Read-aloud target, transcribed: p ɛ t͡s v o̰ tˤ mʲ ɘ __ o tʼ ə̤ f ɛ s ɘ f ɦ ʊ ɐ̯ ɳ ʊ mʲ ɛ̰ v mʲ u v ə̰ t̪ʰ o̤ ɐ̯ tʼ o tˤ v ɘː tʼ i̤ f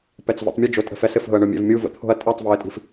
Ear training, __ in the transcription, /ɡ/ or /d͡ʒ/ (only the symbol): d͡ʒ